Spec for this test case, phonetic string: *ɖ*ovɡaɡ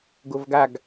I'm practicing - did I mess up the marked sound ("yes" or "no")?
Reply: yes